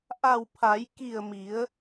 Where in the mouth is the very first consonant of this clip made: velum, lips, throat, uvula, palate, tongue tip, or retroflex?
throat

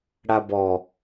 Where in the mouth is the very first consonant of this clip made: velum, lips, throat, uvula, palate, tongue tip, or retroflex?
retroflex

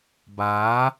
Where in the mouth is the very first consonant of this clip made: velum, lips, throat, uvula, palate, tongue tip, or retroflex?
lips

